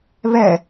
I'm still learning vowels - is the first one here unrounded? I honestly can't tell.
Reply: yes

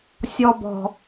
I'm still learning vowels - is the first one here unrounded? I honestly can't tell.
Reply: no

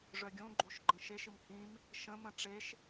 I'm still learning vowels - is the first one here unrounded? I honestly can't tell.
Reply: no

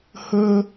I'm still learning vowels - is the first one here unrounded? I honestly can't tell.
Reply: yes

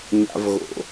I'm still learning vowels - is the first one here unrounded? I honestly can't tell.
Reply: yes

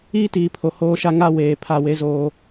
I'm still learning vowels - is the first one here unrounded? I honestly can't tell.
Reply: yes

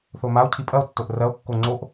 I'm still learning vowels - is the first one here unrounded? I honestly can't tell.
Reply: no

